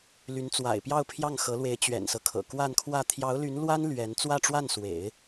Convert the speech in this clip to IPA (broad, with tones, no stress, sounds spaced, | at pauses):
l y˧˥ n t͡s w a̰˨˩ ɪ̯ p j ɑ˥˧ ʊ̯ pʰ j ɑ˥˩ ŋ x ɤ˧˥ l w e˧˥ ɪ̯ t͡ɕ ɥ ɛ̰˨˩ n s ɤ˦ kʰ ɤ̰˨˩ k w a˥˧ n kʰ w ä˥˩ t̪ʰ j ɑ˧˥ ʊ̯ l y˧˥ n l w a˥ n l ɥ ɛ˧˥ n t͡s w ä˥˧ ʈ͡ʂ w a˥˩ n s w ḛ˨˩˦ ɪ̯